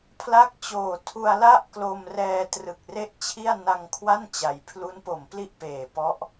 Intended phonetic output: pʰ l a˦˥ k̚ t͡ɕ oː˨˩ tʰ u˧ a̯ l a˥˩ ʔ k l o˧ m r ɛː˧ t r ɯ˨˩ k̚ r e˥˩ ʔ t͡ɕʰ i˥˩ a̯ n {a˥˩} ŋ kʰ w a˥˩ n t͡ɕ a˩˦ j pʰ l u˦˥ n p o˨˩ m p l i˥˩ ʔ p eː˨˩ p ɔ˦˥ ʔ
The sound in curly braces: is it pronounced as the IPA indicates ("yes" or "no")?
no